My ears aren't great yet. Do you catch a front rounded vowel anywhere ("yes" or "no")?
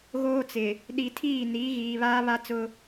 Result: no